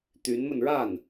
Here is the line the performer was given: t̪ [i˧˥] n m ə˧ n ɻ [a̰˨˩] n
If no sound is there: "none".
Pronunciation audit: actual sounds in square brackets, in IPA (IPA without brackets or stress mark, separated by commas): y˧˥, a˥˩